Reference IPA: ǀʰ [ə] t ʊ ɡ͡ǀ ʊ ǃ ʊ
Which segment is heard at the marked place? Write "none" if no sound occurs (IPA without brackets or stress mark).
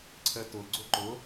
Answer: ə